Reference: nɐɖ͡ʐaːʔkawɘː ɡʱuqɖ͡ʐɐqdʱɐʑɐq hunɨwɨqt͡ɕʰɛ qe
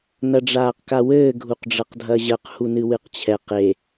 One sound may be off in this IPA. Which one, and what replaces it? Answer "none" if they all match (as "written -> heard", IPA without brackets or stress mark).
ʔ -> q